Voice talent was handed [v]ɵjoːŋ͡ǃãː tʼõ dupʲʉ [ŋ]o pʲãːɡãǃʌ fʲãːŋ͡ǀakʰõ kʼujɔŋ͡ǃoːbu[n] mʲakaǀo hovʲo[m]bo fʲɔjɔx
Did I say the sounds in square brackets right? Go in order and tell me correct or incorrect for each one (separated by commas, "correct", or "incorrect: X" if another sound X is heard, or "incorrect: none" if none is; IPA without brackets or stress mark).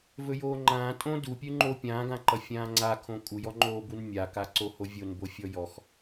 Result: correct, incorrect: ŋ͡ǃ, correct, incorrect: n